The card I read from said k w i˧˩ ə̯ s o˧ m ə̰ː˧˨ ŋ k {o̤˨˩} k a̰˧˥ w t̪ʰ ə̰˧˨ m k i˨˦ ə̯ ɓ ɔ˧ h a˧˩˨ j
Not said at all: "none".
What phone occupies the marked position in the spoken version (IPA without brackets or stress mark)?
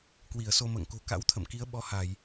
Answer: o̤˨˩